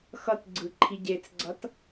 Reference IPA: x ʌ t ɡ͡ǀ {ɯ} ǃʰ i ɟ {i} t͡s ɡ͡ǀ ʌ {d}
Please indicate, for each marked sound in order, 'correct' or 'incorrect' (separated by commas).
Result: correct, incorrect, incorrect